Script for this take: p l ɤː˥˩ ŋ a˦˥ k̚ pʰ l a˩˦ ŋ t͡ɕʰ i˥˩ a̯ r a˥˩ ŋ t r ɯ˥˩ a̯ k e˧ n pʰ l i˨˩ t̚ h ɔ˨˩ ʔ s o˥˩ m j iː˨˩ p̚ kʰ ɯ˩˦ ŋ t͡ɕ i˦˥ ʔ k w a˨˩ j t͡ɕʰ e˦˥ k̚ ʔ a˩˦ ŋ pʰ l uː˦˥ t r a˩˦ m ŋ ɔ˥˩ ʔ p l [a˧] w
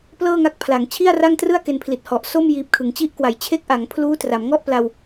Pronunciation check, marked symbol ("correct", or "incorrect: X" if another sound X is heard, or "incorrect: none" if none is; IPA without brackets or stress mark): correct